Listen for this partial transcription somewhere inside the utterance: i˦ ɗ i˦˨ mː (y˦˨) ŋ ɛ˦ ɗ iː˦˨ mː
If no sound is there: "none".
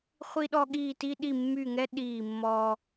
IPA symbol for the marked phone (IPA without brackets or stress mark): y˦˨